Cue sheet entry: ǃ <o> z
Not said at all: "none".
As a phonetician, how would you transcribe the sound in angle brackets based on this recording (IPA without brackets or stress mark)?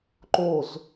o